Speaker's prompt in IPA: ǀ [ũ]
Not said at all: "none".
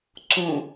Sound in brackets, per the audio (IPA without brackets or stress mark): ũ